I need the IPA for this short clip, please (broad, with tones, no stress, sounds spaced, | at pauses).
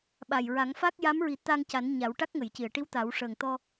ɓ a˨˩ j ɹ a˨˩˦ ŋ f a˦˥ k̚ j a˧˥ m ɹ i˨˩˦ t̪ a˧ ŋ c a˨˩˦ n ɲ a˨˩˦ w ʈ a˦˥ k̚ ŋ ə˨˩˨ j c i˨˩˨ ə̯ ʈ i˧˥ w t̪ a˨˩˦ w ʂ əː˨˩ ŋ t̪ ɔ˧